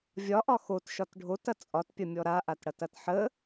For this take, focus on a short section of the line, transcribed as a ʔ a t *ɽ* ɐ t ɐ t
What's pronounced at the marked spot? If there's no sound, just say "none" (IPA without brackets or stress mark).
ɽ